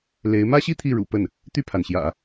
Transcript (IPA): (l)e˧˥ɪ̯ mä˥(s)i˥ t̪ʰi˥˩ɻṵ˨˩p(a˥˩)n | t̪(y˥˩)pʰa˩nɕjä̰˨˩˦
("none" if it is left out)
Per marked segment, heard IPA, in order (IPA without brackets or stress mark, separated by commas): l, ɕ, ə˥˩, y˥˩